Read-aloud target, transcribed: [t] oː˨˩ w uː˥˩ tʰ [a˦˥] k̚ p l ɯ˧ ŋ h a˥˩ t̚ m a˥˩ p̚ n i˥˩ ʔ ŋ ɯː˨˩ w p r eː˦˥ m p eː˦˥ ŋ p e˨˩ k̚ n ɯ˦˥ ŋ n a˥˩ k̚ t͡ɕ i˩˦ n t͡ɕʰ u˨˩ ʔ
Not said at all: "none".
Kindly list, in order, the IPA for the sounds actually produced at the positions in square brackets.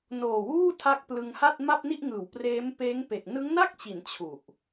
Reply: n, a˦˥

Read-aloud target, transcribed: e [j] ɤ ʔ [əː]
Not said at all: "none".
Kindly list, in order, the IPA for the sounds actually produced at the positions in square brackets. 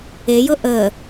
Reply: j, əː

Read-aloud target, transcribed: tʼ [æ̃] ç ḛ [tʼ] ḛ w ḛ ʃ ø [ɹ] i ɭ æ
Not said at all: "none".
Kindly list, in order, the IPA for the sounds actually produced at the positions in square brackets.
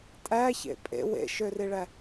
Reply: æ, pʼ, r

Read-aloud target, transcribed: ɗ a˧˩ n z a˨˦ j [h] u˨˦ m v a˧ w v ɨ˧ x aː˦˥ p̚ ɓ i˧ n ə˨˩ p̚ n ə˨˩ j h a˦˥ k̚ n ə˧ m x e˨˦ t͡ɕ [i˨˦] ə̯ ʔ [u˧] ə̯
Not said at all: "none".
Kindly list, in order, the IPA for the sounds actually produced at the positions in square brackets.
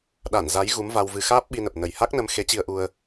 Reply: ɣ, i˧, u˧

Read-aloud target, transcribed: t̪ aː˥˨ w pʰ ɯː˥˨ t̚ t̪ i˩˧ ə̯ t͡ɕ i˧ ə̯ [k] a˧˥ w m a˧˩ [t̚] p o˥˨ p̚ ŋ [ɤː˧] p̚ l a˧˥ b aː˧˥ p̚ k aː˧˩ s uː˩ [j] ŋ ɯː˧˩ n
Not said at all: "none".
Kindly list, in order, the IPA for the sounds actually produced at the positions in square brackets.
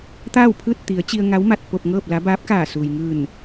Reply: ŋ, t̚, ɤː˥˨, j

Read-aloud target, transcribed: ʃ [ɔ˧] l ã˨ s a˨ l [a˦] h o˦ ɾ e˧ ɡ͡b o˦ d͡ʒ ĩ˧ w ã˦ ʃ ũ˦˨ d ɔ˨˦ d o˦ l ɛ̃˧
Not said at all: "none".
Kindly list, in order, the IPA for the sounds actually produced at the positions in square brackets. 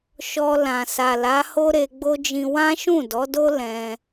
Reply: ɔ˧, a˨˦

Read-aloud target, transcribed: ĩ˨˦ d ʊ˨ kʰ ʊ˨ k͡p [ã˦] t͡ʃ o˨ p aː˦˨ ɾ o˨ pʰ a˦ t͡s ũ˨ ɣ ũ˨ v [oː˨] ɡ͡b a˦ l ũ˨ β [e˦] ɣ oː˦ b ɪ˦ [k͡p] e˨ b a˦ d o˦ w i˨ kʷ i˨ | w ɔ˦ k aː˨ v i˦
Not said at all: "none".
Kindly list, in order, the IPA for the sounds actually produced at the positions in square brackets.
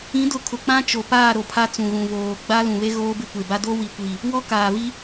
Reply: ã˦, oː˨, e˦, kʷ

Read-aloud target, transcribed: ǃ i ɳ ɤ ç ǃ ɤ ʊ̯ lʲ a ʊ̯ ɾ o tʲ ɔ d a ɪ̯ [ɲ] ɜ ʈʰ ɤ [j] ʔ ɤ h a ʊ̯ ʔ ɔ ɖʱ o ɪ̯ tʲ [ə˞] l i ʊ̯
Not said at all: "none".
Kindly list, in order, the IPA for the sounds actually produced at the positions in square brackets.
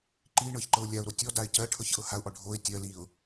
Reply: c, ç, ɜ

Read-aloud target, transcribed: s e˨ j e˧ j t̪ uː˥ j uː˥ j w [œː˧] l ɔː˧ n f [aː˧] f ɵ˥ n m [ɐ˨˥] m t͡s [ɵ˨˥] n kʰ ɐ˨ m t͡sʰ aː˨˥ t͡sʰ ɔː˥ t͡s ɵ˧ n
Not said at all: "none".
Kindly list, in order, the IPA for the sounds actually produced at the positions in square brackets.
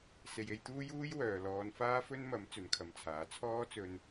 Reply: œː˨, aː˥, ɐ˨˥, ɵ˨˥

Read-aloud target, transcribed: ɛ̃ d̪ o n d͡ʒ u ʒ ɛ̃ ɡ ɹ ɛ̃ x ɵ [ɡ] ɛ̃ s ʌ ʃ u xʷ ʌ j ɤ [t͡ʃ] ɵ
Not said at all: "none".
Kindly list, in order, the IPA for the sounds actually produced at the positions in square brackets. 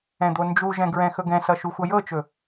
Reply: ɡ, t͡ʃ

